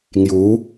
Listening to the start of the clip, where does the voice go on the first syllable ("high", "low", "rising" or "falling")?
rising